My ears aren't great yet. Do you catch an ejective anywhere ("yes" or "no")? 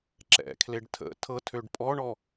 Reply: yes